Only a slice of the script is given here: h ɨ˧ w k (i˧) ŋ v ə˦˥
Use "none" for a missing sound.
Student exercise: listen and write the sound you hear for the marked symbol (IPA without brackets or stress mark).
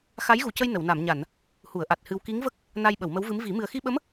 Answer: i˧˥